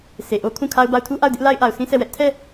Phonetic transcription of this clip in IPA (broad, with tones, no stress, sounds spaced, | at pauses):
sʰ e˨ ʔ o˦ kʰ ũ˦˨ kʰ a˦ ʊ̯ b a˦˨ ʊ̯ tʰ u˦ ʔ a˦˨ ʊ̯ d ɪ˦ ʔ l a˦ ɪ̯ ʔ a˨ ʊ̯ sʰ ĩ˦ sʰ ɛ˦˨ w ɛ˦ ʔ tʰ ɛ˦˨